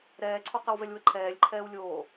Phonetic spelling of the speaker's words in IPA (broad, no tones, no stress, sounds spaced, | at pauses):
ɾ ɛː ǀʰ o q ə w v ɛ lʲ w ə ǃʰ ɛː lʲ ǃʰ ɛː w lʲ oː